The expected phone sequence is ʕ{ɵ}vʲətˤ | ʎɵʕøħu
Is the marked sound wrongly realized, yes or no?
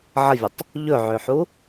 yes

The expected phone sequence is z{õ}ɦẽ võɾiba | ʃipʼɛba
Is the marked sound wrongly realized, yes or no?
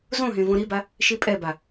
no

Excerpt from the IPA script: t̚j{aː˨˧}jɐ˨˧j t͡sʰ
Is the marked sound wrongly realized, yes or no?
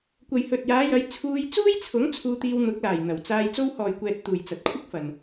no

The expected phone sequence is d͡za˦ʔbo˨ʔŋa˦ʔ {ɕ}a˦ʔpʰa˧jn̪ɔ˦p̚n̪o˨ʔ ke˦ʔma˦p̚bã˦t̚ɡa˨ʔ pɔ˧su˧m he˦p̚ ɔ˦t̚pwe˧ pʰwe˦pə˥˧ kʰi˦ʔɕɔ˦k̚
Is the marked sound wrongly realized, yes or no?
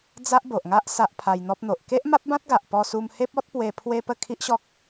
yes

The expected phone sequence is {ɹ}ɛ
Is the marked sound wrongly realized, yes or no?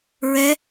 no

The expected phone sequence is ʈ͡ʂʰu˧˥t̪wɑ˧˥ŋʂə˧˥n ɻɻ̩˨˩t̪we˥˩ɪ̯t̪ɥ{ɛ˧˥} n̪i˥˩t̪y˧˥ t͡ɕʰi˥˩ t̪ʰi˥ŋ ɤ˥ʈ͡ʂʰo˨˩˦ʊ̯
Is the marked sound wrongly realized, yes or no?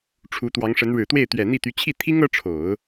yes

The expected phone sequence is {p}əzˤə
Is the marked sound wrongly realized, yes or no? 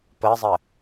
no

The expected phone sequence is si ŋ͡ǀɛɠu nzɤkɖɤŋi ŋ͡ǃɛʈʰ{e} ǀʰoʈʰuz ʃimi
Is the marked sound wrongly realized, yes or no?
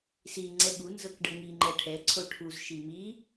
yes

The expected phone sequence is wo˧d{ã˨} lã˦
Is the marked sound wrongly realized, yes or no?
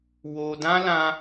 yes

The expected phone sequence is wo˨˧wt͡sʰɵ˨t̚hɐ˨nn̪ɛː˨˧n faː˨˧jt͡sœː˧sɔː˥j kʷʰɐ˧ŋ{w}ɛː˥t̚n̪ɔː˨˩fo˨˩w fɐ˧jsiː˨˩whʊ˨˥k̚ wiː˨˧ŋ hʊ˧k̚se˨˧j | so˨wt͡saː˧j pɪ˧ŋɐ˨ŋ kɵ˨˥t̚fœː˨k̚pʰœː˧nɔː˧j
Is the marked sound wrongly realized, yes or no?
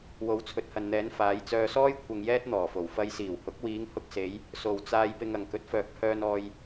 yes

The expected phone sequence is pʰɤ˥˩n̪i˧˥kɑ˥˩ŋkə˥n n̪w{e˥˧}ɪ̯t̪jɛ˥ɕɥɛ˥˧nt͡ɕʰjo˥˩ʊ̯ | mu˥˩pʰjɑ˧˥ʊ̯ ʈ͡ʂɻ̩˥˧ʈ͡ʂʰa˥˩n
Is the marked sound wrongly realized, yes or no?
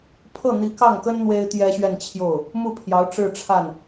yes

